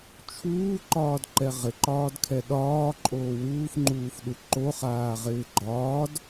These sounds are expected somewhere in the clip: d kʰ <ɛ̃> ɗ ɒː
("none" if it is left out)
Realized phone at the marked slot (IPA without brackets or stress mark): ɛ